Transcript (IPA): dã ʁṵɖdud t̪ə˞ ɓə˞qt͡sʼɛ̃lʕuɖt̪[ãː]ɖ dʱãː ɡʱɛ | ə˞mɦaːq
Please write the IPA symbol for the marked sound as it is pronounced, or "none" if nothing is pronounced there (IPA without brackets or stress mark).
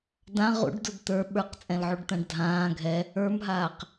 ã